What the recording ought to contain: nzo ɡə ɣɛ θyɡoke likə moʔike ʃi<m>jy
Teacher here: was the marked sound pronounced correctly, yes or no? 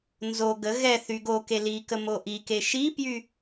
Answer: no